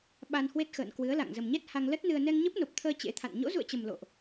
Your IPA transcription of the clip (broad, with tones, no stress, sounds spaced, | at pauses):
ɓ a˧ n h w e˦˥ t̚ x ə̰ː˧˨ n k w ɨ˨˦ ə̯ l a̰˧˨ ŋ z ə˨˩ m ɲ ɛ˦˥ t̚ h a˧ ŋ l ə˦˥ t̚ n ɨ˧ ə̯ n ɛ˧ ŋ ɲ ə˦˥ p̚ n o˨˩ p̚ t̪ʰ əː˧ t͡ɕ ḛ˧˥ t̪ʰ a̰˧˨ n ɲ o̰˧˥ z ṵ˧˨ ə̯ t͡ɕ ə˨˩ m l o̰˧˨ ʔ